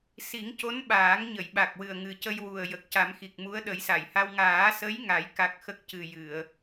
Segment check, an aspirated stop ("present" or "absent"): absent